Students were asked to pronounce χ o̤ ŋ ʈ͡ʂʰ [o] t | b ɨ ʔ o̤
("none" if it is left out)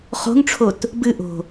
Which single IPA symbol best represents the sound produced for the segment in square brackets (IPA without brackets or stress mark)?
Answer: o